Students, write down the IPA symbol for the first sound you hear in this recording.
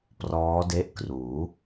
p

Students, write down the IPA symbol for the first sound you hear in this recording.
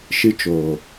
ʃ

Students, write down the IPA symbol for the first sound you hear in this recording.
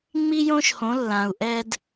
ŋ͡m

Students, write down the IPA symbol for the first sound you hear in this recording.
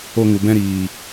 o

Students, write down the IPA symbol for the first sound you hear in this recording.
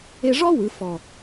e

